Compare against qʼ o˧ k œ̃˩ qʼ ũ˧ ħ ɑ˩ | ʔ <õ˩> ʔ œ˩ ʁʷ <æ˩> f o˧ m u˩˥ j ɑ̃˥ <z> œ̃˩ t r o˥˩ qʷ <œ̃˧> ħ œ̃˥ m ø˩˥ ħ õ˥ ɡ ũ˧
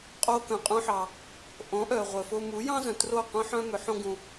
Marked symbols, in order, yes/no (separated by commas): no, no, yes, no